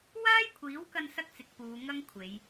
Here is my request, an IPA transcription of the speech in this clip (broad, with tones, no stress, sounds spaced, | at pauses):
w aː˥ j kʷʰ iː˨˥ w k ɐ˧ n s ɐ˥ k̚ t͡s ɪ˨ k̚ p uː˨˧ ŋ ɐ˥ ŋ kʷʰ e˨˧ j